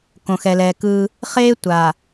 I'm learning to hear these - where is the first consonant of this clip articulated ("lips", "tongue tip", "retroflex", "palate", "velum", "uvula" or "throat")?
velum